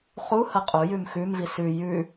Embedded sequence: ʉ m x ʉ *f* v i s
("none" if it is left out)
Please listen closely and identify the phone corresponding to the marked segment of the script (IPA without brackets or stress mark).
m